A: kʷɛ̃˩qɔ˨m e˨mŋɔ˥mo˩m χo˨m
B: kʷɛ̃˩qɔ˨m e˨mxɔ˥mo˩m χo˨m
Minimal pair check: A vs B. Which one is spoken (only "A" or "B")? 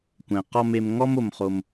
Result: A